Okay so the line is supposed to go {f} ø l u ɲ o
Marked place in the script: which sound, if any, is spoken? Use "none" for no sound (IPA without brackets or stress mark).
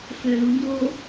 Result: f